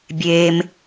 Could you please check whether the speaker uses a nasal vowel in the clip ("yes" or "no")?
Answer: no